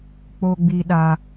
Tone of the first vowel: high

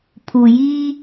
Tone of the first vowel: low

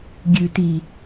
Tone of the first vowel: low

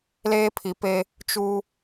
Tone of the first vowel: high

